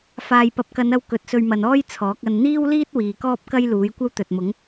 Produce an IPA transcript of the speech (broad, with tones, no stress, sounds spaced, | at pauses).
f aː˨ j p ɐ˨ p̚ k ɐ˨˧ n ɐ˧ w k ɵ˨˥ t̚ s ɵ˧ ɥ m ɐ˨ n ɔː˥ j t͡sʰ ɔː˨˥ k̚ ɐ˧ n n̪ iː˥ w l iː˥ t̚ w iː˨ k ɔː˥ p̚ k ɐ˥ j l uː˨˥ j kʷ ɐ˥ w t̪ ɵ˨ t̚ m ʊ˨˥ ŋ